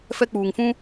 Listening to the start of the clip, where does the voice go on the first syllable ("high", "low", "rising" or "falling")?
high